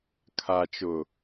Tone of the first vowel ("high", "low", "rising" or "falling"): low